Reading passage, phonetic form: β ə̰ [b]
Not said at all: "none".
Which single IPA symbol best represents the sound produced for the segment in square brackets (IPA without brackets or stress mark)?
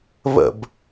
b